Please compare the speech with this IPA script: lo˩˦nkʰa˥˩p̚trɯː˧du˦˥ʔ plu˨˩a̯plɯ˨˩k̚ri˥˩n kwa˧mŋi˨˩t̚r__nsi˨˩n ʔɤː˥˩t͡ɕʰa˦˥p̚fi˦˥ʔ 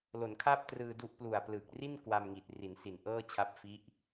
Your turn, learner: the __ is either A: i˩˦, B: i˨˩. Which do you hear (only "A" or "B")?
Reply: A